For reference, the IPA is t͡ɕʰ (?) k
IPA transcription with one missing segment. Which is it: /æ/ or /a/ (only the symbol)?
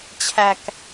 æ